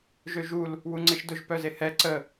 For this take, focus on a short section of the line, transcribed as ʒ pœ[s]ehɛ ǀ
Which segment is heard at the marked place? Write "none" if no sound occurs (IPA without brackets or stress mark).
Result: z